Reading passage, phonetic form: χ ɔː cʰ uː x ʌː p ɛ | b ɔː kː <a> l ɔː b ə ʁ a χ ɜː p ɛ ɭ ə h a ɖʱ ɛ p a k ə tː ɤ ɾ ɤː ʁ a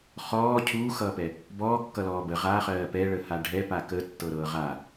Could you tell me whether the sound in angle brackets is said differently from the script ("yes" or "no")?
yes